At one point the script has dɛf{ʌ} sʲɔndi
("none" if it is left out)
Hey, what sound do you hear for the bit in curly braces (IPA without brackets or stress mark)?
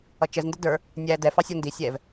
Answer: ɑ